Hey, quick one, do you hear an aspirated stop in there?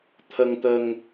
yes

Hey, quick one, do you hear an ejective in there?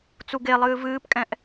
yes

